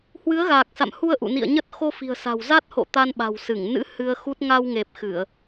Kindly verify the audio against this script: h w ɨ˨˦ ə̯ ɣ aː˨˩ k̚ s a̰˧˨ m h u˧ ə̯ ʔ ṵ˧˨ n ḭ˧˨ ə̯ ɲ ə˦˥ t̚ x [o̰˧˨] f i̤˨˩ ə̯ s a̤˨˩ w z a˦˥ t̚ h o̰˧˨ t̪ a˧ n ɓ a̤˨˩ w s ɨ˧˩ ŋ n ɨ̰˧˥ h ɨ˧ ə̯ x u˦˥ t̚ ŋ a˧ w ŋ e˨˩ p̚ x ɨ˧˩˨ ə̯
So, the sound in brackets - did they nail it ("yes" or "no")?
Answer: no